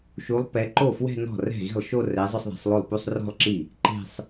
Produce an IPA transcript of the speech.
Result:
ʃu˨˦lˠ pɛ˨˦ǃo˥˩fwɛ̤˥˧nɔ̤˥˩ rɛ̤˥˩ɣi̤˥˩lˠʃo˥˧ rɛ˨˦ zˤʊ˥˧sˤðɛ̤˨˦sˤlˠo˥˩lˠ pu˥˧sˤrɔ̤˥˧lˠǁi˥˩ | ǃe̤˥˧sˤ

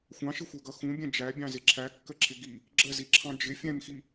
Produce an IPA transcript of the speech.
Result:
xʷɑ̃ʃɪxʷɜɡʌ xũbʲɛ̃ d͡ʒæbʲɑ̃zɪ ǁʰækːəǁʰɪ ɡi | ɡ͡ǁəziǁʰɑ̃ d͡ʒɪ fʲɛ̃mxi

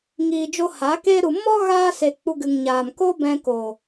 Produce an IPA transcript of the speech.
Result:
ŋiː˨d͡ʒo˧ ha˨˦keː˦ɾu˧ mɔ˦ ɣaː˦se˧ k͡pu˧ɡɨ˨ŋɲaː˨m ko˦bɛ̃˧ko˨

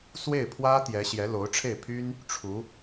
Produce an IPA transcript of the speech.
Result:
swe˥˩ɪ̯pʰwä˥ t̪jɛ˧˥ ɕjɛ˧˥lo˧˥ʊ̯ʈ͡ʂʰe˥˩ɪ̯ pʰy˥n | ʈ͡ʂʰu˧˥

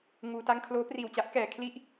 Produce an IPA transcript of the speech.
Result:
ŋuː˧ta˥˩ŋ kʰloː˦˥priː˨˩wt͡ɕa˦˥ʔkɛː˨˩ kʰli˥˩ʔ

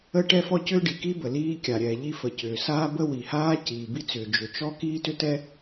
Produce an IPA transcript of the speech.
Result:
ə˥ ʈɛ˥fɔ˥cʏː˥ ɖi˩ki˥bə˩ liː˥kʲa˩ ɾʲɛː˩ʎi˥ fə˩cʏː˩saː˥ bə˥wi˩haː˥ ciː˩bi˥t͡sʏː˩ d͡ʒʏ˩t͡ʃɔ˥ kiː˥tʏ˥tɛ˥

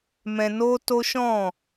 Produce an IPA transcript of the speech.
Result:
mɛ̃˧no˦to˦ ʃɔ̃˦˨

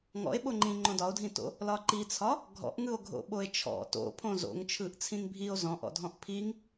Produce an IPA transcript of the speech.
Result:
ŋɔ̰e̯ɓoŋ͡ǃĩ ŋ͡ǃõdɒo̯dʱĩto̰ | lɒǃit͡sʰɒ | ɡʱɔ̰ʔŋɯo̯ ɡʱo̰ɓoe̯t͡ʃʰɔ̰ to̰ pʰõzo̰ŋt͡ʃʰɯʔ t͡sʰĩŋbʱio̯ zɔ̃ʔɔ̰dʱɔ̃ʔ pʰiŋ

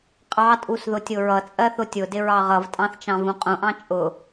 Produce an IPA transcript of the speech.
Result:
qʼɑtʼus ðʊtʲʊɹʌt͡sʼɜ θʊtʲʊdɪ ɹɑʁʌvtʼɑ̃θ t͡ʃɑ̃vũqʼũʔɑ̃ t͡ʃʼʊ

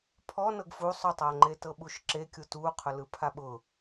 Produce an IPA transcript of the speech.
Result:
pʰɔnɤɡ fu sˤʊtˤʌːŋ͡ǃe tɤɓuʃǁekʲu tu qʰʊlɯpʰaɓʊː

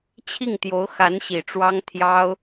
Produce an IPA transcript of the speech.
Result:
t͡ɕʰi˥˩ŋt̪jo˧˥ʊ̯ xa˧˥nɕi˨˩ʈ͡ʂwɑ˥ŋ t̪ʰjɑ˥ʊ̯

